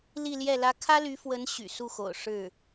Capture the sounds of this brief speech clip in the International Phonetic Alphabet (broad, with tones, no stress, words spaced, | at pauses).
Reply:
li˥˧ljɛ˥˩lä˥ kʰä˥ly˧˥fwə˧˥n ɕy̰˨˩su˥˩xo̰˨˩ʊ̯ ʂɻ̩˥˩